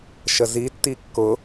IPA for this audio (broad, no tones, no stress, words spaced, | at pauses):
ʃəzi tːikːʊ